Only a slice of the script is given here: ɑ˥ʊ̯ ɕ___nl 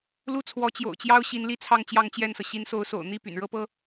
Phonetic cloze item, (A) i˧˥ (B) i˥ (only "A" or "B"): A